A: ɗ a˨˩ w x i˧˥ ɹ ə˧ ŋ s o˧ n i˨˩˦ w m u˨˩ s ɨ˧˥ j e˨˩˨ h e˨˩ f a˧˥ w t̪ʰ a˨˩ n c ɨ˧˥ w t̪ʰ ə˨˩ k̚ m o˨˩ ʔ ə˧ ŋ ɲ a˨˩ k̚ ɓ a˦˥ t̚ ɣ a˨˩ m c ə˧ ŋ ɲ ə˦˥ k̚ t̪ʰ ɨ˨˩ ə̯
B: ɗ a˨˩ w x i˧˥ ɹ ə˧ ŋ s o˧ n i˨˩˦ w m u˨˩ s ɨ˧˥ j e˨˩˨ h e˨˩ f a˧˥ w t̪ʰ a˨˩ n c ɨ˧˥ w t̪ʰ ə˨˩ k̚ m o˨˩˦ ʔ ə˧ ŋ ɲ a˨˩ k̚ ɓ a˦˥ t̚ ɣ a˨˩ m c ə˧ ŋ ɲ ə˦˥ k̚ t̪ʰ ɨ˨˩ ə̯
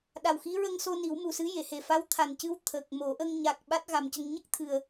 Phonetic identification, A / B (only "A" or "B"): B